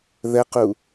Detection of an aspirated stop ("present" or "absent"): absent